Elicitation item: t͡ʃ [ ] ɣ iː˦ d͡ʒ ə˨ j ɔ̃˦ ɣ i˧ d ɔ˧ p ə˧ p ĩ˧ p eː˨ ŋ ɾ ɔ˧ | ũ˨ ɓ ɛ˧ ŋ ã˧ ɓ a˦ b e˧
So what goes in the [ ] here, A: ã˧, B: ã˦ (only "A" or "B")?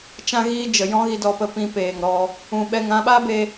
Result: B